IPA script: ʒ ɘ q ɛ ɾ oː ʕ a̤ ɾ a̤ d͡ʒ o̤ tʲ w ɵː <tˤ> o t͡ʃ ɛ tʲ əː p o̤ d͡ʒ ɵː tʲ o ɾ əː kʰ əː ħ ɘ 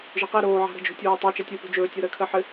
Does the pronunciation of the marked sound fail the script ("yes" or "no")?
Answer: no